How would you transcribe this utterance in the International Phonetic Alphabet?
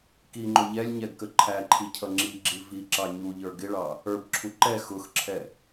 k i ŋ͡ǃ ʊ ʎ ɛ lʲ ɲ ɛ ɡ k ə ǃʰ æ ǃʰ i cʰ ʌ ŋ͡ǁ i ɡ͡ǁ i v i ǁ ɑ ɲ u ʎ ə˞ ɡ ɪ ɭ ɑ | ə˞ b ǁʰ u ǃ ɛ x ʊ x ǁʰ ɛ

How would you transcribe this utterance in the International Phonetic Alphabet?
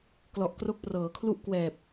k l ɔ˨˩ ʔ k r o˦˥ k̚ p r ɤː˩˦ kʰ l u˥˩ ʔ k w ɛː˨˩ p̚

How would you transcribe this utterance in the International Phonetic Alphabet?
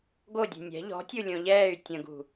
ɡ o dʲ ɛ̤ nʲ ɛ̤ ʎ ɔ̤ tʲ u lʲ õ ʎ ɛː y̯ tʲ ə̃ ɡ ṳ

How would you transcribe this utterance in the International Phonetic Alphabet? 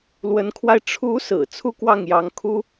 l w ə˧˥ n kʰ w a˧ ɪ̯ ʈ͡ʂʰ u˧˥ s ɹ̩˨˩ t͡sʰ u˥˧ k w ɑ˥˩ ŋ j ɑ˧˥ ŋ kʰ u˥

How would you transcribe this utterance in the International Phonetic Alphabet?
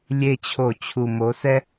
lʲ e˦˨ t͡ɕʰ o˧˩˧ t͡ɕʰ u˨˩ m o˩˧ s ɛ˦

